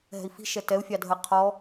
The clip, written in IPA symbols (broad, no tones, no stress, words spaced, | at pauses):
ɦɛ̤i̯fi̤ ʃɛtɛu̯ fʲɑdʱə qʰɔ